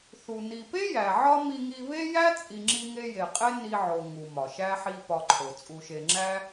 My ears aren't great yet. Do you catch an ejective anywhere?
yes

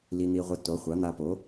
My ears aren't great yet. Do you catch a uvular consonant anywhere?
yes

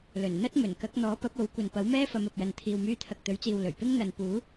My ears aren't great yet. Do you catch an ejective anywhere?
no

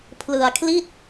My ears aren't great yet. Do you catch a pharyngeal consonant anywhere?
no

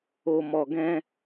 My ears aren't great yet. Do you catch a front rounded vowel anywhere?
no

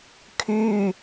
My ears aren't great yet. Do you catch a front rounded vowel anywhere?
yes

